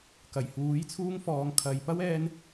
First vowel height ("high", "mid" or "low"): low